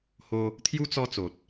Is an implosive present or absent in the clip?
absent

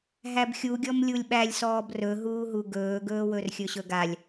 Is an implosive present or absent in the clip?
present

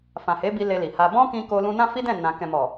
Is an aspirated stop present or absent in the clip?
absent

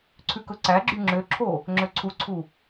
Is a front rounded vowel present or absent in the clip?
present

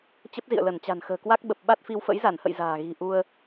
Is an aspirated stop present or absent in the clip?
absent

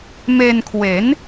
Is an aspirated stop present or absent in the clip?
present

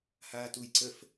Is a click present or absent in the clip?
present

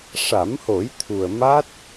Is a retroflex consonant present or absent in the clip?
present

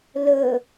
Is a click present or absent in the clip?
absent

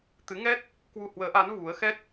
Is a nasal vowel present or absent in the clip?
absent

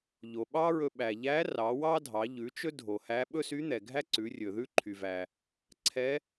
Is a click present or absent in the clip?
present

